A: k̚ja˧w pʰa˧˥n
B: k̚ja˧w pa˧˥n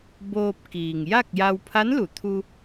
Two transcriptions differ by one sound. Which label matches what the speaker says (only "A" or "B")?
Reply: A